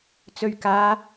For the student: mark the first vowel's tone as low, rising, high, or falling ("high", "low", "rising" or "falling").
low